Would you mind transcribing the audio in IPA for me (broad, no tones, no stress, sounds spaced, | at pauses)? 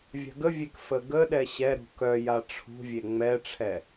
vʲ a̤ ɡ ə vʲ e k f ə ɡ ə ɗ ɛ ɕ ɛ ɾ ṳ k œ j a ʈ͡ʂʰ ṳ vʲ e ŋ͡m ɛ ʈ͡ʂʰ ɛ